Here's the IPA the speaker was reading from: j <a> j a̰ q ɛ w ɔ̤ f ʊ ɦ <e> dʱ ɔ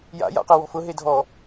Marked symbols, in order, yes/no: no, yes

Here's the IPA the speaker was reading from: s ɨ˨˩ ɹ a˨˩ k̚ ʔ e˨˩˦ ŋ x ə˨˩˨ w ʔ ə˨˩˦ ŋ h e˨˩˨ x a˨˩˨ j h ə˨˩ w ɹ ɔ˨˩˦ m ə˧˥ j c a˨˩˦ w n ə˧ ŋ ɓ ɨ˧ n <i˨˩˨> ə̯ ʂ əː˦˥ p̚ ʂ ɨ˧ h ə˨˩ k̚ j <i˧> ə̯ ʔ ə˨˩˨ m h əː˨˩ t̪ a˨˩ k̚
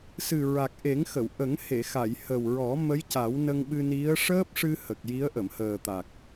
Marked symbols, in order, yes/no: no, no

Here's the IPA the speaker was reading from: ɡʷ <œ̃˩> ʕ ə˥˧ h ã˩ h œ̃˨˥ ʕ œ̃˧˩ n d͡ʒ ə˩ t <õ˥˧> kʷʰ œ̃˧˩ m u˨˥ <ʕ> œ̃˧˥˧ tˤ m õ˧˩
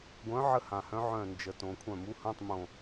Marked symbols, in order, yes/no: no, no, no

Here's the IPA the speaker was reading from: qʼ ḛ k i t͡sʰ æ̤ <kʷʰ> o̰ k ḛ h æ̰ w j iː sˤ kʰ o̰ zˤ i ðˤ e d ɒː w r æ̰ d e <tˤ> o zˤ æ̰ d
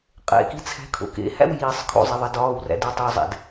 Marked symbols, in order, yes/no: no, yes

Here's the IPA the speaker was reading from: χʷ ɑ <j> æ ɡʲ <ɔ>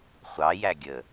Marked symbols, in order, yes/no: yes, no

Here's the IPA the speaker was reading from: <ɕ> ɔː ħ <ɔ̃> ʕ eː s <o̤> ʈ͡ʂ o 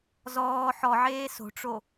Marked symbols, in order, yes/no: no, no, yes

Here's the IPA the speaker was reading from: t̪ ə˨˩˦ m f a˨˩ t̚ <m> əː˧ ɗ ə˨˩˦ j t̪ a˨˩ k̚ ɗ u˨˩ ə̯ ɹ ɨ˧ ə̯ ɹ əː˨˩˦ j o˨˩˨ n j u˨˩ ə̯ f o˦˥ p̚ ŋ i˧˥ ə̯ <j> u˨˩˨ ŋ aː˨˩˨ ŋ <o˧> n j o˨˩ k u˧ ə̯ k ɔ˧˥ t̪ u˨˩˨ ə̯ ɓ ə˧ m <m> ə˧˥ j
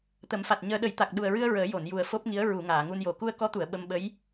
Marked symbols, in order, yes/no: no, no, no, no

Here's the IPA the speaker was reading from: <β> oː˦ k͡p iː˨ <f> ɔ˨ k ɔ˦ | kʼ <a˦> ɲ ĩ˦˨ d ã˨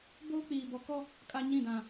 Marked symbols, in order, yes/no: no, no, yes

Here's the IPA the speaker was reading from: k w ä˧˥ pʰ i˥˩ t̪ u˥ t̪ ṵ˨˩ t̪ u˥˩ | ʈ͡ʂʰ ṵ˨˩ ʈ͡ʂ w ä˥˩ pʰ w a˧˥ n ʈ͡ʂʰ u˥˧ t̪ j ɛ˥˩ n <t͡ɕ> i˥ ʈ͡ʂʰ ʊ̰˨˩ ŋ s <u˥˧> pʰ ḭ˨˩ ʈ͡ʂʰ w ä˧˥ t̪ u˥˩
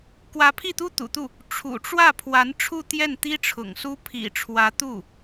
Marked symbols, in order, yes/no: no, no

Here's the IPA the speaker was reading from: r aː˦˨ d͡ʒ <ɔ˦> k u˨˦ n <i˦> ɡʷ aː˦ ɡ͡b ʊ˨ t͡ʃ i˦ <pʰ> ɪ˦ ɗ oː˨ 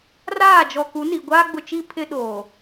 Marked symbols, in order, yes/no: no, no, yes

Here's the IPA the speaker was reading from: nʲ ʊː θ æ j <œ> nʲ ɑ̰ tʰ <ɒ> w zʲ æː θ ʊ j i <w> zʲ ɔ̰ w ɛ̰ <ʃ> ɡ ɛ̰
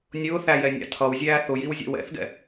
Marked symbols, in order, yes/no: no, no, yes, no

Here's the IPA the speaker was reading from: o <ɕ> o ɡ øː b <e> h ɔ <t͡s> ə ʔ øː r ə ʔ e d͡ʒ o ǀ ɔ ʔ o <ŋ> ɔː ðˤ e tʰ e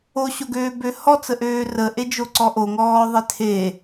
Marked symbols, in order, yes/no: yes, no, yes, yes

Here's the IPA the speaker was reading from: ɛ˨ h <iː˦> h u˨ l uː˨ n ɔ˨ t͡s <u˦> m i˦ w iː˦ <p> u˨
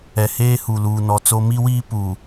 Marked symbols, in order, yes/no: no, no, yes

